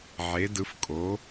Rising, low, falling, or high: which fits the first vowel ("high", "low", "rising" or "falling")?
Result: rising